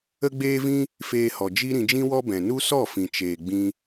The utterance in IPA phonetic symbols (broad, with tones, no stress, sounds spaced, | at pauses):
ə˧ ɡ͡b eː˧ v ĩ˧ | f eː˧ h ɔ˨ d͡ʒ i˦ ɾ ĩ˧ d͡ʒ ĩ˦ w ɔ˦ b ɛ̃˨ n u˦ s ɔ˦˨ f ĩ˨ t͡ʃ eː˨ ɡ͡b ĩ˧